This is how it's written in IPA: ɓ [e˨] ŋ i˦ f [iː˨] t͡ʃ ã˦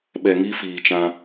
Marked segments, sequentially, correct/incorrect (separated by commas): incorrect, correct